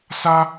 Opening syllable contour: high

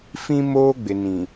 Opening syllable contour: high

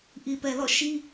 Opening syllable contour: low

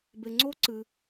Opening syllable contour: low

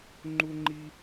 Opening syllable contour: high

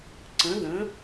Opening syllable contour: rising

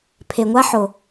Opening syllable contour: low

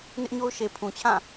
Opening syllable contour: high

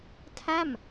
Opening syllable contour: falling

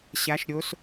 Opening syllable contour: rising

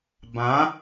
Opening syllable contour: rising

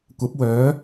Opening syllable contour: rising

